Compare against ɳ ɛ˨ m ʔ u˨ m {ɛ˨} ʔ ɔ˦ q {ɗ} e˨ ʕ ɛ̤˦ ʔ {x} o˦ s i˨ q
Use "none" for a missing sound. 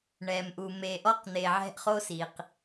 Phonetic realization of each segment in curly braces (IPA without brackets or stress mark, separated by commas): e˨, n̪, χ